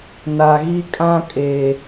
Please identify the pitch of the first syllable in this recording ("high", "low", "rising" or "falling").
low